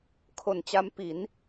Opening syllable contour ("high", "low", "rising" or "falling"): low